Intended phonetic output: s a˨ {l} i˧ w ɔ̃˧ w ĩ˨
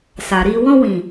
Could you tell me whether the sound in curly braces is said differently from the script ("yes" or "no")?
yes